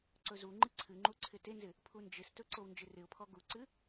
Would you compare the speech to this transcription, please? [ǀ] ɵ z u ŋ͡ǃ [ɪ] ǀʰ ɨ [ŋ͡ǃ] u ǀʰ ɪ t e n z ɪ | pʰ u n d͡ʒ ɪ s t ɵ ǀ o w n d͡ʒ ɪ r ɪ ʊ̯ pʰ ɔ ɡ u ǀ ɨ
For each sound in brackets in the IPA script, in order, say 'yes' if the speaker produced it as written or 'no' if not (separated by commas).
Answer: yes, no, yes